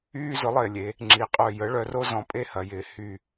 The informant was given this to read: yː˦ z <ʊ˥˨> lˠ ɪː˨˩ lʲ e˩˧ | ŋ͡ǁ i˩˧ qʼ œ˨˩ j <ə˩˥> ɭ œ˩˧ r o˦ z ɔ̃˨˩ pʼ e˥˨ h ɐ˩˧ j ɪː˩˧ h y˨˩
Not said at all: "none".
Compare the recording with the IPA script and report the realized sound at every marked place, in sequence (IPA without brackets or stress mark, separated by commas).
ʊ˩˥, ə˩˥